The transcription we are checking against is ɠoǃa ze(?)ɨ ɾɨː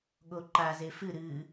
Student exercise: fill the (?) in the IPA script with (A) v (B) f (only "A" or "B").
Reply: B